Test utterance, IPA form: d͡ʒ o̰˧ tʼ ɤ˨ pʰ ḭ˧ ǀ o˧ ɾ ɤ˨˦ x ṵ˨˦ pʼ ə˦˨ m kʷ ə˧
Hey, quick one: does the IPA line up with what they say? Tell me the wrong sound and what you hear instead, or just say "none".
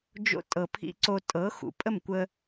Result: ɾ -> tʼ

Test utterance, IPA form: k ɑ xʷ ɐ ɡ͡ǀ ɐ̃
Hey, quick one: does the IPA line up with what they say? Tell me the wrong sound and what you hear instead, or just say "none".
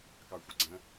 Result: none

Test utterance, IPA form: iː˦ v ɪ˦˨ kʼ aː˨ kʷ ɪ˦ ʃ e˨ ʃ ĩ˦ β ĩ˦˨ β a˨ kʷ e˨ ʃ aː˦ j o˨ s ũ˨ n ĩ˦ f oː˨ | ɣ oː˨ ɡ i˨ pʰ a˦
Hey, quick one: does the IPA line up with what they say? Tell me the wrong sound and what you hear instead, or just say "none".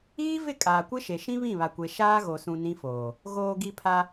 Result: j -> ɣ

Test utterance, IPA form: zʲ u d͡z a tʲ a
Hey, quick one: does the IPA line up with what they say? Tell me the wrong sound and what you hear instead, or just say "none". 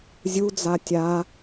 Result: none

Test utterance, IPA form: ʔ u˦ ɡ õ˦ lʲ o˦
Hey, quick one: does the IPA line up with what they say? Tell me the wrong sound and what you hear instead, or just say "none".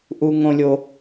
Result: ɡ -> ŋ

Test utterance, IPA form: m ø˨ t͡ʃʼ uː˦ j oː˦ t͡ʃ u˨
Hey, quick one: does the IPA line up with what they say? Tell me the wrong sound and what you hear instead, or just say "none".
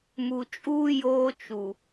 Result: ø˨ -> u˨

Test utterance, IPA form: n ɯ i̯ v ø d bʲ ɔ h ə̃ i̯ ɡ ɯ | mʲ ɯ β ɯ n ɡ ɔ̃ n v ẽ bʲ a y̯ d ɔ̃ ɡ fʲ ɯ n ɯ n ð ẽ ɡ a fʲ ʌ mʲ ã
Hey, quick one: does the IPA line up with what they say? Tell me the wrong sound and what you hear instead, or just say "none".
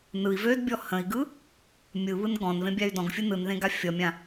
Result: none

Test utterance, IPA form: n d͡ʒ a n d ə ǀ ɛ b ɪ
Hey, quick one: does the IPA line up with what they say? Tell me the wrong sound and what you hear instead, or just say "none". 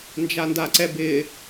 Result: ə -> a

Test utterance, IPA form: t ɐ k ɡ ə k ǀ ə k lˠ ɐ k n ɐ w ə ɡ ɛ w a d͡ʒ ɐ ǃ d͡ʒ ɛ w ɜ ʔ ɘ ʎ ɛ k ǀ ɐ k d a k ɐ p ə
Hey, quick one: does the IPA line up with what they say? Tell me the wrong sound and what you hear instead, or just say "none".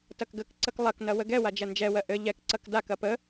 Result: ǃ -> n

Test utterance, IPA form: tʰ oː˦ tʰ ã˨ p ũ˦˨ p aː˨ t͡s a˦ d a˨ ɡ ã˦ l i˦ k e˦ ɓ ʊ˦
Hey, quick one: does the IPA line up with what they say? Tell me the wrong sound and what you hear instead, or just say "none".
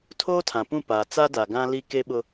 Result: none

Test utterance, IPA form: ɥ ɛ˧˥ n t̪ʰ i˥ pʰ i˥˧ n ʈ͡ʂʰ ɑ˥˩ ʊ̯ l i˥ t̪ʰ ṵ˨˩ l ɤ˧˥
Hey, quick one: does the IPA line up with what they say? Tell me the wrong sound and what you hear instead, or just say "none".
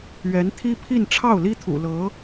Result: none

